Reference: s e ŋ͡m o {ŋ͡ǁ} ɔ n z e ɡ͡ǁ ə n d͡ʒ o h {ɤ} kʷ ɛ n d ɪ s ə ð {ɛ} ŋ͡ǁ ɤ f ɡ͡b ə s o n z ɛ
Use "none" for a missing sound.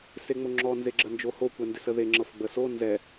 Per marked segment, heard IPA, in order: ŋ͡ǁ, o, e

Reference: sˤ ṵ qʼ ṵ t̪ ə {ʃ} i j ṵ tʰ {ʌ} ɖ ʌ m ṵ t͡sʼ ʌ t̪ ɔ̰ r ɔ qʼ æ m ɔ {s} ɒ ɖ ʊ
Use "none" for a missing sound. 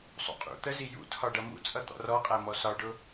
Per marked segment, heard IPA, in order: z, ɒ, s

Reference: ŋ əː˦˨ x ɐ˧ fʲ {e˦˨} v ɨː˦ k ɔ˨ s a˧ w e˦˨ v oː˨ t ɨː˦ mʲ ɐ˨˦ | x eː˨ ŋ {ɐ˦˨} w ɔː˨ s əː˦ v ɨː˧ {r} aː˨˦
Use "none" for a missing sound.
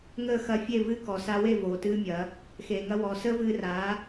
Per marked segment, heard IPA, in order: e˦˨, ɐ˧, r

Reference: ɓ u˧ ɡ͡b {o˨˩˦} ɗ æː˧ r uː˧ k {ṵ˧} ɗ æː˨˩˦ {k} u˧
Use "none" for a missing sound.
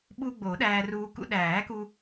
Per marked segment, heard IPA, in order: o˨˩˦, ṵ˧, k

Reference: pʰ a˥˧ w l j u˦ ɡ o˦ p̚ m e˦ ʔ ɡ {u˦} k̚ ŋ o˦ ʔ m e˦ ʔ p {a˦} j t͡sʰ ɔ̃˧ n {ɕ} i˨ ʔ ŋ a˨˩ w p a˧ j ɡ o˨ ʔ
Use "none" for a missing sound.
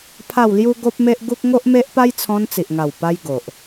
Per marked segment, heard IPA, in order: u˦, a˦, t͡s

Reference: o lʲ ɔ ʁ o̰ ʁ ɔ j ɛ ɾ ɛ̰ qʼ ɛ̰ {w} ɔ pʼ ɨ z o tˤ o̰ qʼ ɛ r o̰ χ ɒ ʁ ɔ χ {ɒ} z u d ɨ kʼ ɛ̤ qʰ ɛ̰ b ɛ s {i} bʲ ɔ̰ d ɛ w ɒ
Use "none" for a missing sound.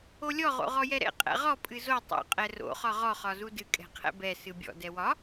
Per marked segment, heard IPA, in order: ʁ, ɒ, ɨ

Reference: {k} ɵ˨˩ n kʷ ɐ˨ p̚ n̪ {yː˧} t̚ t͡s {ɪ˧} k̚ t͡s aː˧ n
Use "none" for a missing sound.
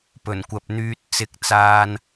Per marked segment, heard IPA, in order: p, yː˧, ɪ˧

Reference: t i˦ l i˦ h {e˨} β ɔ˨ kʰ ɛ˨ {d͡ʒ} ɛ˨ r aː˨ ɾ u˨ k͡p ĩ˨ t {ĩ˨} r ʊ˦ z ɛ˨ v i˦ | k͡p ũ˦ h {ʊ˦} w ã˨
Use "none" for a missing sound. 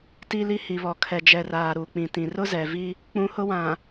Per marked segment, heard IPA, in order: i˨, d͡ʒ, ĩ˨, ʊ˦

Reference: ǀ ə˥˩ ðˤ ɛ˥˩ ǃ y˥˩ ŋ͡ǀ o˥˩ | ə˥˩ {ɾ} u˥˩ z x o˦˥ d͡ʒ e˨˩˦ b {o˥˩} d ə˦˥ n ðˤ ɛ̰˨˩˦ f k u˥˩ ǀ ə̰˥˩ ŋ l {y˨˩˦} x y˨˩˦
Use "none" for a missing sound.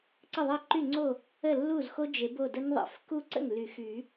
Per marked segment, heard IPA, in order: lː, o˥˩, y˨˩˦

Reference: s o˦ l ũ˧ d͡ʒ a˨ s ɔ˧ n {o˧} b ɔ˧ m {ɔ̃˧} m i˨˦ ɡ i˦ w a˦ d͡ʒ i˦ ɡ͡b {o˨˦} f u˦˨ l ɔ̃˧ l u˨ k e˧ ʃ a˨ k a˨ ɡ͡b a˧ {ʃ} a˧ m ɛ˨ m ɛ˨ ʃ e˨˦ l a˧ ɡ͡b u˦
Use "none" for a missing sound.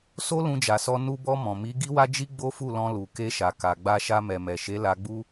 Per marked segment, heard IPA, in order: u˧, ɔ̃˨, o˦, ʃ

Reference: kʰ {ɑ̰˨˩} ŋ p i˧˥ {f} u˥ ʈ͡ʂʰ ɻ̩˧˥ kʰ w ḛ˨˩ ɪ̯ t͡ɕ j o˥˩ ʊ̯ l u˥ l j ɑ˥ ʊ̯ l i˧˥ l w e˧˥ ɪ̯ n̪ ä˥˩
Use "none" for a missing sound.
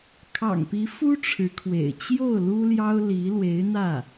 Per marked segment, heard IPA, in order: ɑ̰˨˩, f

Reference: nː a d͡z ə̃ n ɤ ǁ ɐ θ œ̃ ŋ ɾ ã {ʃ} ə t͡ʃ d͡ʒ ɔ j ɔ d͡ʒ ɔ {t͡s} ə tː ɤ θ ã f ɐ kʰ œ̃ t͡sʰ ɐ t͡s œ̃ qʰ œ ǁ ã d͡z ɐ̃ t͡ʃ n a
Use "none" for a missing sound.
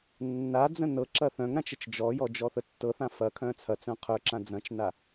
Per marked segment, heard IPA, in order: t͡ʃ, θ

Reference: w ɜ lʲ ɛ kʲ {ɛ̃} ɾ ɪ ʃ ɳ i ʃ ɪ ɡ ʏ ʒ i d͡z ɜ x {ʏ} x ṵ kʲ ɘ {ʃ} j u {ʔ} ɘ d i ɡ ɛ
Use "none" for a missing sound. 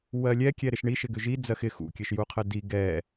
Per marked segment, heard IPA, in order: ɛ, ɪ, ʃ, qʰ

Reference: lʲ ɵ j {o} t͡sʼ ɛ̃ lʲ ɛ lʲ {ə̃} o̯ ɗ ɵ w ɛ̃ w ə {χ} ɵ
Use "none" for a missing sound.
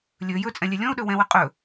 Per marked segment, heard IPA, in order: ɵ, ɔ̃, qʼ

